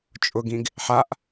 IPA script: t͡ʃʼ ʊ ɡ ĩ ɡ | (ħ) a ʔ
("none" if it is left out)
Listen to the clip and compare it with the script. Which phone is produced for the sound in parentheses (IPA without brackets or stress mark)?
ħ